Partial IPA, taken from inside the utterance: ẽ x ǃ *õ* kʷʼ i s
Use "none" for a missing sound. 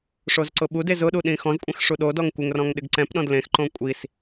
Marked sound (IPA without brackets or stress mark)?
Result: õ